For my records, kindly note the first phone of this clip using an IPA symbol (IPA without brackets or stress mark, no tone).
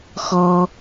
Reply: x